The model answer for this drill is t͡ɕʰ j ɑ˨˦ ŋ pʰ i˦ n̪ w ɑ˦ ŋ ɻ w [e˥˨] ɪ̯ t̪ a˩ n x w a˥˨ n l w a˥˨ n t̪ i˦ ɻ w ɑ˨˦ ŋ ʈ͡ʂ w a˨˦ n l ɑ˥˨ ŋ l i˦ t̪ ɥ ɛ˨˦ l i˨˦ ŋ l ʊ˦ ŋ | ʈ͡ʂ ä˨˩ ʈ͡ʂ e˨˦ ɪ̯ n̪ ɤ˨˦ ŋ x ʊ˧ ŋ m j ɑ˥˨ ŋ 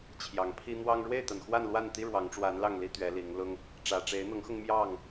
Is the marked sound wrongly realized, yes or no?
no